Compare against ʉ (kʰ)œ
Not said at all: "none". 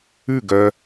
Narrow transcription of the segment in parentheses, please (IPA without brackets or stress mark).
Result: ɡ